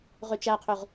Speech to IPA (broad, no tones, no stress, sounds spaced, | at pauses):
ʁ ø t͡ʃ æ qʰ ø ʁ